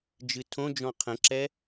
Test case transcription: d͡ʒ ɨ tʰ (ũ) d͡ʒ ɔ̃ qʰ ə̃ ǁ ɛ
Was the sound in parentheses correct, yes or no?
no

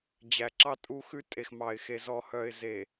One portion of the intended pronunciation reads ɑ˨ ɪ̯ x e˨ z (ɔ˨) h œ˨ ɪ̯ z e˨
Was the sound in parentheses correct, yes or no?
yes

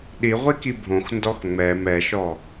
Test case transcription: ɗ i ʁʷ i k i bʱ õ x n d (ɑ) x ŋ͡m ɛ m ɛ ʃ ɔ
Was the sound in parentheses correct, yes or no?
no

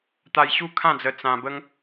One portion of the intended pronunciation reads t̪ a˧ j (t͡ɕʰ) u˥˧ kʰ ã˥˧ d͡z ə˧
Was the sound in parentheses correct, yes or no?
no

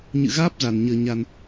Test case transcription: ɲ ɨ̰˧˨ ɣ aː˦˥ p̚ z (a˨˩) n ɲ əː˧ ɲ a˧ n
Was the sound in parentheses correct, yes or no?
yes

